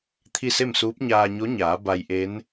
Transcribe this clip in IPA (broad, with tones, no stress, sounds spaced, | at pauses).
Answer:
t̪ʰ i˥˨ s e˥˨ m s uː˧˥ p̚ ɲ aː˧ ɲ o˧˥ ɲ aː˩˧ b a˧ j ʔ e˧˥ n